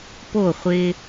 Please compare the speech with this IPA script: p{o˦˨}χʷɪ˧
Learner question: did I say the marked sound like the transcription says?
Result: yes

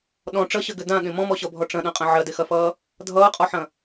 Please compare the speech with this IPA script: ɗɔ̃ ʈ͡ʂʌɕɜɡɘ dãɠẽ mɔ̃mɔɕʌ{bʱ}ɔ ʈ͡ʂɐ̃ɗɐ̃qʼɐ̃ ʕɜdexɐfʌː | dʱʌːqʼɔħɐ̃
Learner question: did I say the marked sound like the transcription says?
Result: yes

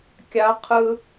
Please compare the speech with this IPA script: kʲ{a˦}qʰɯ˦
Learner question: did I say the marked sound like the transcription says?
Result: yes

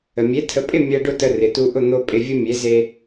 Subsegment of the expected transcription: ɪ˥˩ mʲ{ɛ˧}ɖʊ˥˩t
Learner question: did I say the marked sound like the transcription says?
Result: yes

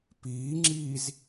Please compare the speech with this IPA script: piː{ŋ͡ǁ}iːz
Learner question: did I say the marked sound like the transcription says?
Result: yes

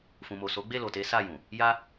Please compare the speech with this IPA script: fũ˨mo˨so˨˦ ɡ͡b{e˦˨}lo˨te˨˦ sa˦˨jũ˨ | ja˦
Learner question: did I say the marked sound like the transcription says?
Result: yes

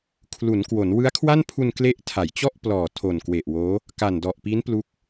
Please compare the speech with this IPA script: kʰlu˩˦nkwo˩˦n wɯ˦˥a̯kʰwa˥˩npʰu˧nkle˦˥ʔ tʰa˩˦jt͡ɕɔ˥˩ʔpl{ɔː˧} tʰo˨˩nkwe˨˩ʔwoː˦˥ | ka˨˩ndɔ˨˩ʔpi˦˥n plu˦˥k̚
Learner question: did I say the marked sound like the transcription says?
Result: no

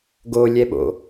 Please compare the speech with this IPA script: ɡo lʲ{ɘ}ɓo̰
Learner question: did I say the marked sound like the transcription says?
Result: no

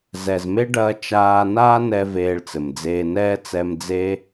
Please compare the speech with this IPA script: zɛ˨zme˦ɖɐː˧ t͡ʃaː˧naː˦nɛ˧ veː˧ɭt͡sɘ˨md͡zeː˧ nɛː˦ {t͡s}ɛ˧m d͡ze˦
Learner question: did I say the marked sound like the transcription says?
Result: yes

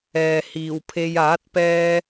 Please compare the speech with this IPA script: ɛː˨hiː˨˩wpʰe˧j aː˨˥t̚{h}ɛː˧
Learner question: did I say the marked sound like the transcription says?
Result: no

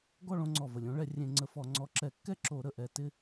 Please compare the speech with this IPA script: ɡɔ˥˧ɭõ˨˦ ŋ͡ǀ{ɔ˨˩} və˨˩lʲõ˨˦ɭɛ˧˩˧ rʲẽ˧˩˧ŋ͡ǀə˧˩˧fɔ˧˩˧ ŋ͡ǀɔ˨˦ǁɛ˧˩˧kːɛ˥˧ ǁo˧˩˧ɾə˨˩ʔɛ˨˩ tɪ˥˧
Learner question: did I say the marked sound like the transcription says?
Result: yes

